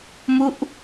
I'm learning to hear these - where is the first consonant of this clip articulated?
lips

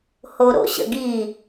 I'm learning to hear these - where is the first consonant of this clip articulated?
throat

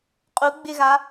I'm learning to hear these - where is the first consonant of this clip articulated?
uvula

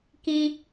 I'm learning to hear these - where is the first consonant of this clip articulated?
velum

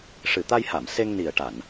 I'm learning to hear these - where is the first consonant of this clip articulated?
retroflex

